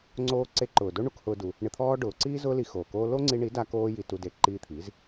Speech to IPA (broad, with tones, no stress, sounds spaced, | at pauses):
ŋ͡ǀ oː˦ ǀ e˧ ǃ ʊː˨ d o˦ ɳ u˦ k h ʊː˦ d u˧ | ɳ ɪ˧ t̪ʰ ɔː˦ ɖ ʊː˨˦ ǀ iː˦ z ʊː˦ l i˧ x oː˨ k oː˦ l o˦ ŋ͡ǀ i˧ ɳ i˨˦ d a˧ k oː˦ j i˧ t u˧ d e˨˦ ǃ iː˧ t̪ʰ i˨˦ z